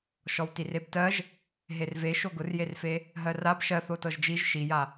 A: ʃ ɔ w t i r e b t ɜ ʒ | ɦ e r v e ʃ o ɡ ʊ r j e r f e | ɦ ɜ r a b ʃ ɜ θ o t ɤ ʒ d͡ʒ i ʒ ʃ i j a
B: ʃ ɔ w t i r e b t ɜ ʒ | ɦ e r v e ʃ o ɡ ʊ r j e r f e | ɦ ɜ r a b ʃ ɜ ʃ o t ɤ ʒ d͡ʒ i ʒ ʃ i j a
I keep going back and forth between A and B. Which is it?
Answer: A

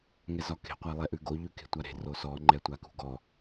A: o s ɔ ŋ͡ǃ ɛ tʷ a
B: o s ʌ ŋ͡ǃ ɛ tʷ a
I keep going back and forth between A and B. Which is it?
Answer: A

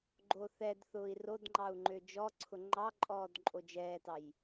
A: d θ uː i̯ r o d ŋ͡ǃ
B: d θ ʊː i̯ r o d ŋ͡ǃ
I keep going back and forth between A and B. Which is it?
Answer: B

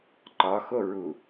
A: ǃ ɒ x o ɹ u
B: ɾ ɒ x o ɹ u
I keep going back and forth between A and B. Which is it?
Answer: A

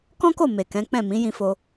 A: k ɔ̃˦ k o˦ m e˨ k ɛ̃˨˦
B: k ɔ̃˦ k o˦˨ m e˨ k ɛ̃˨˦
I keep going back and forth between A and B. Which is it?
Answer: B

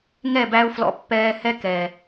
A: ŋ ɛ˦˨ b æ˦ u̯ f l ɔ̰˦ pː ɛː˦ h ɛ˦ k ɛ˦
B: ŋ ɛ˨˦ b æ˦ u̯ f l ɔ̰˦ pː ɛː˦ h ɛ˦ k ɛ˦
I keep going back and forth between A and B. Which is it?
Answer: A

